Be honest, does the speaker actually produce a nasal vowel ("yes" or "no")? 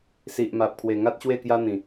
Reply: yes